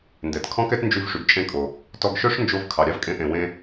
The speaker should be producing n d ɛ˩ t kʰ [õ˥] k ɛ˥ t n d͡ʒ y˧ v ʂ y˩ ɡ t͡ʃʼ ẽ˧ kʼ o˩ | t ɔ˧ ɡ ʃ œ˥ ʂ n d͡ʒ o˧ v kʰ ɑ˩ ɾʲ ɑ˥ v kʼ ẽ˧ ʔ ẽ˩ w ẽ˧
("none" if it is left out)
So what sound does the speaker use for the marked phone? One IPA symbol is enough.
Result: ɔ̃˥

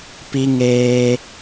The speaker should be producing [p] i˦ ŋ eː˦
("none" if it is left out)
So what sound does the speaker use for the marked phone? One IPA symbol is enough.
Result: p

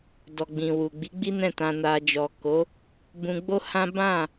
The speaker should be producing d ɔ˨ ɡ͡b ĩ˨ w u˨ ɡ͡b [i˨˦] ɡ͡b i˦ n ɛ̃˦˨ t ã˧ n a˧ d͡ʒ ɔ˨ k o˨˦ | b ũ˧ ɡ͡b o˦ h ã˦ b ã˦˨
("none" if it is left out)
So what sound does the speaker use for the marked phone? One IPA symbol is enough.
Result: i˨˦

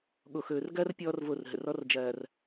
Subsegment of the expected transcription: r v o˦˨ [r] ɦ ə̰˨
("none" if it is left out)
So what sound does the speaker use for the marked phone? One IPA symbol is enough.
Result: r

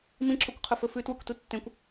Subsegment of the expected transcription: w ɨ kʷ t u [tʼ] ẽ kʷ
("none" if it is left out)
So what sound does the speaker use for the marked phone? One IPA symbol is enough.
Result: tː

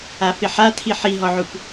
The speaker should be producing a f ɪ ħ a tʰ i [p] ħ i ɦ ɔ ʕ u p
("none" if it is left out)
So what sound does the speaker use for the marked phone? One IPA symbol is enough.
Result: none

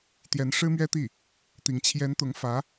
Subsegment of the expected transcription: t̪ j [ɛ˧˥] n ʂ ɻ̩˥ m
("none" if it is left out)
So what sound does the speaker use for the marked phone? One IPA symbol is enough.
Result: ɛ˧˥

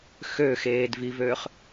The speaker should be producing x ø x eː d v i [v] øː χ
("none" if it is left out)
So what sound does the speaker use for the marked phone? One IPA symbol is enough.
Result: v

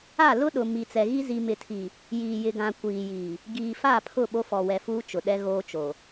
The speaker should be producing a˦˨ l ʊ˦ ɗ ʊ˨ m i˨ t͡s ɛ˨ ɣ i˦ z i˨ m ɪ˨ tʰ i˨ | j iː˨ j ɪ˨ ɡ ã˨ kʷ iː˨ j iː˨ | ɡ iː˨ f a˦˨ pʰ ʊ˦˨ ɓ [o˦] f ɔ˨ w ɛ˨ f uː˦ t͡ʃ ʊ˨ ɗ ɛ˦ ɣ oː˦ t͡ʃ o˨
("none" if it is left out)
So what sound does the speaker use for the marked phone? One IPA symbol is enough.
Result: o˦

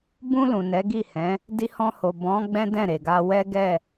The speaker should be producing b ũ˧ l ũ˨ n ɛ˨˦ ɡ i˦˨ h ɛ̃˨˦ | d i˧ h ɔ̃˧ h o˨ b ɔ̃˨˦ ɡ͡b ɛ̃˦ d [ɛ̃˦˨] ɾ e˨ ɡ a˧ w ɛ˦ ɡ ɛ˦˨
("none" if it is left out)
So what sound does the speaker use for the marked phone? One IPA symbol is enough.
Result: ɛ̃˦˨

